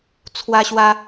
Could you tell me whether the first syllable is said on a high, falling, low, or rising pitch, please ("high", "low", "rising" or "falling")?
high